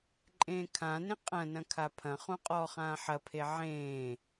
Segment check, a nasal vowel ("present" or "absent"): present